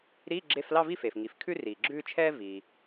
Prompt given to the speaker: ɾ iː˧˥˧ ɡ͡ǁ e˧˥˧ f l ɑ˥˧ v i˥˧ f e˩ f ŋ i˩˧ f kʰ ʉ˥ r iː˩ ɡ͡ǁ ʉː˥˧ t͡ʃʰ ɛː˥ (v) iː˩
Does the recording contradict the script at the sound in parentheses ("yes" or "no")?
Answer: no